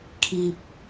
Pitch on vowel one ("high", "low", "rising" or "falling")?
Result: low